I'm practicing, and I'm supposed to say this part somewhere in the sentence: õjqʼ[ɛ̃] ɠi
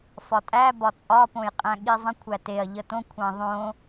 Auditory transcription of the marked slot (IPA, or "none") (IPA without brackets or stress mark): æ̃